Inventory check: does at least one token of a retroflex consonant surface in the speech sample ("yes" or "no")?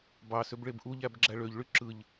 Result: yes